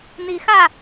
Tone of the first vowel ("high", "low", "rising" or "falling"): rising